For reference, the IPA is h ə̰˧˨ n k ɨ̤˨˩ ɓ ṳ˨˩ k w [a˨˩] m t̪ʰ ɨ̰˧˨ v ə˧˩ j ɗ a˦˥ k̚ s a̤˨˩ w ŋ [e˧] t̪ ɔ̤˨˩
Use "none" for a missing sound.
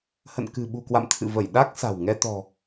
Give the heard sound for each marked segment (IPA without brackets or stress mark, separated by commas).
a̰˧˨, ɛ˧